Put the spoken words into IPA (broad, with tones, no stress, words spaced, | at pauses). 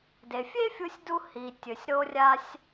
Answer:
de˩fʲe˥fʲu˧sʲdu˧ hi˩tʲɵ˩sʲ ɾo˧rʲa˧sʲ